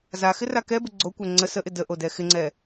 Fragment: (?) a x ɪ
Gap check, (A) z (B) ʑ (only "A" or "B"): A